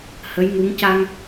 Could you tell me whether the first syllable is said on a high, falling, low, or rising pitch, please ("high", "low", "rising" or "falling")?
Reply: rising